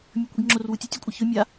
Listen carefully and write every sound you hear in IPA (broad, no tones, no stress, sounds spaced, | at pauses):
mʲ ɐ kʷ i ɡ ŋ͡ǁ o r w u tʲ ɐ tʲ ʉ kʷʼ ɨ ç ɵ mʲ a